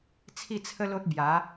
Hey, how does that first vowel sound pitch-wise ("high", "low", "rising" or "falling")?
falling